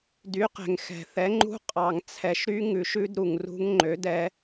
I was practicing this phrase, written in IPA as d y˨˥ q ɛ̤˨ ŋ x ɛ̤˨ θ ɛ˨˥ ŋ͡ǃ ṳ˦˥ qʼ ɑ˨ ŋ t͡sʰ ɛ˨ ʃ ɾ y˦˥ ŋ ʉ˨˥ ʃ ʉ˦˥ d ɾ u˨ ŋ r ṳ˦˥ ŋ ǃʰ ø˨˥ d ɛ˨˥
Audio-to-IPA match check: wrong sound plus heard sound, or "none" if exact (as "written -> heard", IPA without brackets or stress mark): ǃʰ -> ŋ͡ǃ